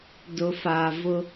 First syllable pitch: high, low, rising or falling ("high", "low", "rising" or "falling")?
low